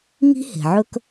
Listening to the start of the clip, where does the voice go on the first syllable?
high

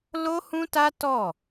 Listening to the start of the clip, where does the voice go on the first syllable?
high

